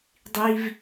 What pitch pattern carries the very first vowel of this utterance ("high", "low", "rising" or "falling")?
high